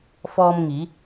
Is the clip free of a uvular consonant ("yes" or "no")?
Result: yes